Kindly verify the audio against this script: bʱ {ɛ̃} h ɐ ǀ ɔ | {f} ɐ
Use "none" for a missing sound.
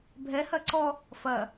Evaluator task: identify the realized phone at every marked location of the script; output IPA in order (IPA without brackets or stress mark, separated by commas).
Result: ɛ, f